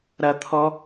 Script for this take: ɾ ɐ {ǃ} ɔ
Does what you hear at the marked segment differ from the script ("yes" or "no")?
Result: yes